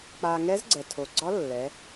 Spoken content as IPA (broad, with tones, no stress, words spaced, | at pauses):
k͡pa˧ ŋɛ˧˥zɡ͡ǀɛ˩tʰo˩ɡ͡ǀɒ˧˥ lːɛ˩˧